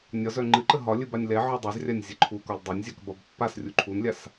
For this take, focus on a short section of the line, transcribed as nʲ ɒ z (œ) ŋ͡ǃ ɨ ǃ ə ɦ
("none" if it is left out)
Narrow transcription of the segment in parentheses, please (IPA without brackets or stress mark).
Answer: œ